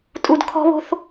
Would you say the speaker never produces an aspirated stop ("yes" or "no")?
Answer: no